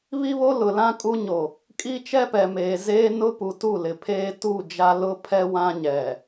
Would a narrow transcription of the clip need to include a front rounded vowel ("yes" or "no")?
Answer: no